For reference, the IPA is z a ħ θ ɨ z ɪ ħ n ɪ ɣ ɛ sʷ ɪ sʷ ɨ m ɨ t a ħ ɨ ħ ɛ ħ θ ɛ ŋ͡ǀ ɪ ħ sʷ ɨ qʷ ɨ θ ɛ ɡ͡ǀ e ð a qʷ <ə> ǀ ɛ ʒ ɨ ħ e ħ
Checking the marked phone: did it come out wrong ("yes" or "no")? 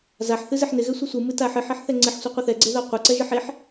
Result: yes